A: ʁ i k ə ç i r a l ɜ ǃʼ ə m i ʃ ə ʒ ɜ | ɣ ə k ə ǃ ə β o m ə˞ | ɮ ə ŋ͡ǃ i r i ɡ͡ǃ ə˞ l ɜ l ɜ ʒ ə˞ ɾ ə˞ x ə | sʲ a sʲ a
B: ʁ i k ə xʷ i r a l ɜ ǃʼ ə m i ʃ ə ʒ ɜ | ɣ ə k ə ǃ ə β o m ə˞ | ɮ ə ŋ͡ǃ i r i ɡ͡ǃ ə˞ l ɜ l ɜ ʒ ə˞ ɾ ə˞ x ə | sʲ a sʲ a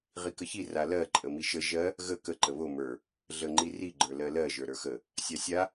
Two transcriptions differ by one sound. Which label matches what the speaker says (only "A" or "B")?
A